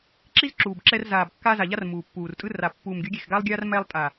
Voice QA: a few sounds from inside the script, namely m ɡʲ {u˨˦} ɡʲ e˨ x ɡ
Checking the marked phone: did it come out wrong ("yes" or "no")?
no